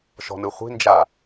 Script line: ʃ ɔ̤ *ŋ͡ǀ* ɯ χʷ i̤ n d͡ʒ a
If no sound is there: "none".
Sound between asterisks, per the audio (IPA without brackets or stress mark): n